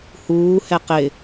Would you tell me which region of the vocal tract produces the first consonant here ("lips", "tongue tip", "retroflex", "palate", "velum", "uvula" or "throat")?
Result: throat